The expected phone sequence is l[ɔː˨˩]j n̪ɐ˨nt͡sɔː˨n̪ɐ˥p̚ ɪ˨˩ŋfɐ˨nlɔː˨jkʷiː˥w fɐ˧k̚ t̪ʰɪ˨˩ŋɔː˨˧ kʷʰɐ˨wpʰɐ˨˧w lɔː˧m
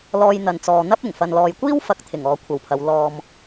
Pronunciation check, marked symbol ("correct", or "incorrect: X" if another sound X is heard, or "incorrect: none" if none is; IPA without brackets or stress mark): incorrect: ɔː˧